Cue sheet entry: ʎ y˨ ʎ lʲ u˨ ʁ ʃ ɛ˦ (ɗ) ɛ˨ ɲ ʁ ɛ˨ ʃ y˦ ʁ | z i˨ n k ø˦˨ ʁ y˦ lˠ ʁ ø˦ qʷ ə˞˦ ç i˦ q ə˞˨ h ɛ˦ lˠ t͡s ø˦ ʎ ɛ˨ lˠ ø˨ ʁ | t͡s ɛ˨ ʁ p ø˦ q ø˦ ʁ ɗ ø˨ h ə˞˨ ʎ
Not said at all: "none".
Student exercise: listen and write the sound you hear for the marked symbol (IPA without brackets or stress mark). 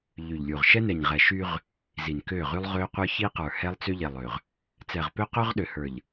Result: n